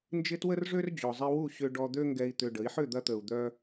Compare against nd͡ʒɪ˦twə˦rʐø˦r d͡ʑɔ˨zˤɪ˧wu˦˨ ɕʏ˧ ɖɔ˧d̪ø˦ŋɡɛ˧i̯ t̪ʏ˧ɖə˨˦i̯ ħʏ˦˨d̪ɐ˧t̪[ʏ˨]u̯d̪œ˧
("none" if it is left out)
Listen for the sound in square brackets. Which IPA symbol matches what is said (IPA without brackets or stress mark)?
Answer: ə˨